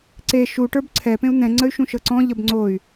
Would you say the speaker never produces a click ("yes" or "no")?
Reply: no